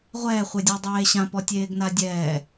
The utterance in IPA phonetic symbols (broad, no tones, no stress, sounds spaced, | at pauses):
ʁʷ ɛː χʷ e dʲ o dˤ eː ɕ ã p ɔ tʲ eː ɡ n a dʲ ɛː